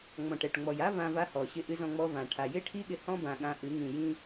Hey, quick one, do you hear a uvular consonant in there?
no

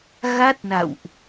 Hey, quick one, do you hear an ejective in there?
no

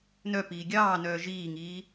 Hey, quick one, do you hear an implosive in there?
no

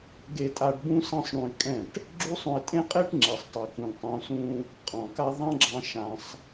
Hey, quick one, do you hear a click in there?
yes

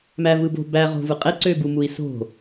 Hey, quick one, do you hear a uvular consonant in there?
yes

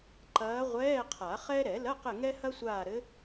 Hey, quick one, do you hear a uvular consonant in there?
yes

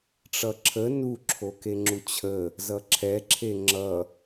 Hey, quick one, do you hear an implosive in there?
no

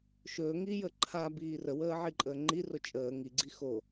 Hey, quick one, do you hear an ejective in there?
yes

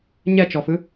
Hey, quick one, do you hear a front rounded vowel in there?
no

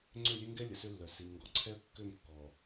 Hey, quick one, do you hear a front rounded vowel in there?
yes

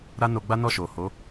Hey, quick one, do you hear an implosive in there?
no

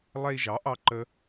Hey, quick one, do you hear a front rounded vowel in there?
no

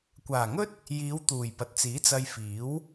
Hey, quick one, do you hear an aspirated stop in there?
no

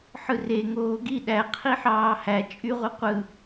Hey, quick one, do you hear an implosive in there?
yes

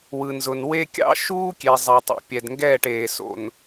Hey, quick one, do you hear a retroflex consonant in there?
yes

